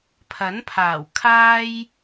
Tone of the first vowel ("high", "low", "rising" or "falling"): rising